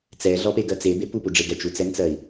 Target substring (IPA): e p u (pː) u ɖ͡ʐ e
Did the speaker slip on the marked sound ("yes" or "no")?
yes